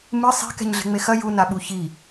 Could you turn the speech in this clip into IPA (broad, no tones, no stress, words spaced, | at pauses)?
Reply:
mɨ sˤe̤ kɛ̤ɲɮe̤ŋ͡mexɐ ju naɓuçi